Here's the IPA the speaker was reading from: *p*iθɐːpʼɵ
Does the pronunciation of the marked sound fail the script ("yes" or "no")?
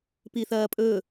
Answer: no